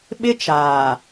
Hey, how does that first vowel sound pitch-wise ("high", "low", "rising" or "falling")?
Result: high